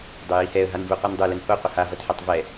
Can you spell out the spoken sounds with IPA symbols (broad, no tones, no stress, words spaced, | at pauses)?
dˤøjihɛə̯ ɦanvuqʷindˤu lɘnho qʷəha vɐtħatˤvɛ